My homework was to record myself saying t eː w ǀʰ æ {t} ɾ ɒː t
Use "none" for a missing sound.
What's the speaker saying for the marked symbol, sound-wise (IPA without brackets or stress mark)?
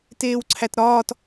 t